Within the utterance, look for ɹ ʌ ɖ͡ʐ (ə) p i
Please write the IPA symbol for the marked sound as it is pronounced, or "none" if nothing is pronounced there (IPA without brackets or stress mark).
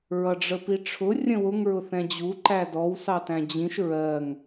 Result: ə